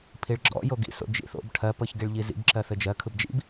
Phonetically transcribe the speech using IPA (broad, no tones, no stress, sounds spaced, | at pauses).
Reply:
pʰ i ɭ ɡ͡ǁ ɔ̰ j o ɡ ḭ s o̰ d͡ʒ ḭ θ o̰ b ʈʰ ɜ p ɤ ç ɡ i ɭ ʎ i z ḭ b ǁ ɜ θ ɘ d͡ʒ ɜ kʰ ɯ b d͡ʒ ḭ b